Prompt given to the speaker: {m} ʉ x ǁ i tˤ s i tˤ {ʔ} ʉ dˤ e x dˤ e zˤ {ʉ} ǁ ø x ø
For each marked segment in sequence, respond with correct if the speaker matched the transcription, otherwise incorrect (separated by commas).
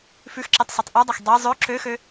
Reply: incorrect, correct, incorrect